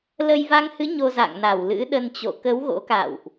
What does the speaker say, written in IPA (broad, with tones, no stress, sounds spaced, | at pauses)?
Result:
l ə˧ j v a˧ ŋ h ɨ˨˦ ɲ o˧ z a̰˧˨ ŋ n a˧˩ w l ɨ̰˧˥ ɗ ə˧ n t͡ɕ o̰˧˨ k ə˨˦ w ɣ o̰˧˥ k a̰˧˨ w ʔ